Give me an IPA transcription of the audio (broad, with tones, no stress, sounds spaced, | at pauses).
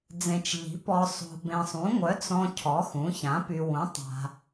d͡z ẽ˨ t͡ʃ ʎ i̤˩˥ p ɔ˨ sˤ o̤˨ b ẽ˨ sˤ ũ˩˥ ŋʷ œ˩˥ t͡s ɔ̃˨ cʰ ɔ˩˥ x ũ˩˥ ç ã˩˥ p y˨ w ũ˩˥ tˤ a̤˨